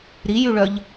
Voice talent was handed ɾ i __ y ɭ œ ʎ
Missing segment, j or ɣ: j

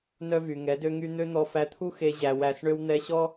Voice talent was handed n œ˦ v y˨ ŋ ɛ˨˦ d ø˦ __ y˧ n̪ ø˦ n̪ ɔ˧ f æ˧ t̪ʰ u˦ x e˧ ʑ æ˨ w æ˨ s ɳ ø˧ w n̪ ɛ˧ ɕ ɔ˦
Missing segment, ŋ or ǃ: ŋ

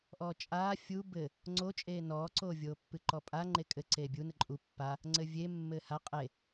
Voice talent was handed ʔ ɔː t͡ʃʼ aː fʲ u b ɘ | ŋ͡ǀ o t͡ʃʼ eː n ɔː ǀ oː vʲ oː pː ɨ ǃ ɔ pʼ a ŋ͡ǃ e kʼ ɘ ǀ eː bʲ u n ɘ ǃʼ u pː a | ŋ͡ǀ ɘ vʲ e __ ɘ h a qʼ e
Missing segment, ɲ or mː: mː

